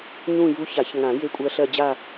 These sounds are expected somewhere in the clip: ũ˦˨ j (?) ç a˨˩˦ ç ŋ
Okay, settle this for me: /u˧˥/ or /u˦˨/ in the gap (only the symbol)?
u˧˥